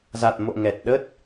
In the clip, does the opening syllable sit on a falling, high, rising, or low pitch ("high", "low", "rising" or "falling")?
low